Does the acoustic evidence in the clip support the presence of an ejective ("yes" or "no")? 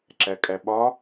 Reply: yes